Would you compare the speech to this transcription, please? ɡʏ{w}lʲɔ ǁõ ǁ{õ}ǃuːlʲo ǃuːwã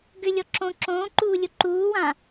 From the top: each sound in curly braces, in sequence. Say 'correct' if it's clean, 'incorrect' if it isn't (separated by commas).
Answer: incorrect, incorrect